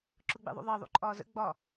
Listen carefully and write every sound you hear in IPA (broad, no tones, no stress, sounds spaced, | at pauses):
ǁ ʊ ɡ͡b ḛ ðˤ ṵ ðˤ əː ðˤ ṵ ǃʼ ɒː z ə̰ ɡ͡b ɒ